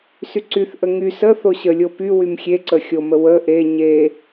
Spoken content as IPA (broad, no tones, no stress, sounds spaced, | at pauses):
s y ǀ y θ ʔ ə ŋ y s ə θ o ɕ ə lʲ o p y w y m xʲ e ǀ ə xʲ o m ə w ə ʔ e ɲ e